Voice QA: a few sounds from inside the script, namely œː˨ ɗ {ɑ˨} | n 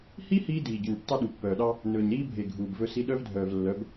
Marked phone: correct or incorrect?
incorrect